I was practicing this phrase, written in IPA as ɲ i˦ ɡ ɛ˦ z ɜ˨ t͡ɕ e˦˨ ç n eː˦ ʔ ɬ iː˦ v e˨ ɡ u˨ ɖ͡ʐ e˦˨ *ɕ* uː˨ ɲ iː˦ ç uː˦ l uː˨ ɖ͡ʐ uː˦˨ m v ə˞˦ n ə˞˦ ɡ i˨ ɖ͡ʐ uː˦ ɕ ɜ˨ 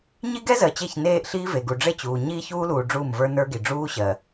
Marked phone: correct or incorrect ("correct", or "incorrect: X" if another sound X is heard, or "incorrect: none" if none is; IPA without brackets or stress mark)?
incorrect: t͡ɕ